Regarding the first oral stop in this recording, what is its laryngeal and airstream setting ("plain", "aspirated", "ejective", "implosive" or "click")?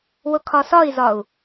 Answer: aspirated